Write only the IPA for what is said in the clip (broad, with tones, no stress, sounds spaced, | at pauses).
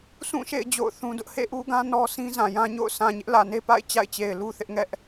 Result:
sʰ ũ˦˨ ʃ ḛ˦˨ ɪ̯ d͡ʑ o̰˦˨ ʊ̯ θ ũ˦ d ʊ˦ ʔ h ḛ˦˨ ʔ u˦ ɡ ã˦ n ɔ˦ s ĩ˦ z ã˨ j ã˦ ɲ o̰˦˨ ʊ̯ sʰ ã˨ ɲ ɪ˦ ʔ l ä˨ n e˦ p a̰˦˨ ɪ̯ t͡ɕ a̰˦˨ ɪ̯ t͡ɕ e˨ ɪ̯ l u˦ θ ɪ˦ ʔ ŋ ɛ˦ ʔ